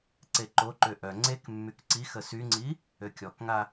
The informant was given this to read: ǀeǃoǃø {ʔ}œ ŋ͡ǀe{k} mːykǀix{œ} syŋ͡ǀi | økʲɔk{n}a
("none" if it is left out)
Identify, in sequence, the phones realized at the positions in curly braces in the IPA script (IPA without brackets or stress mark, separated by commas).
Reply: ʔ, k, ə, ŋ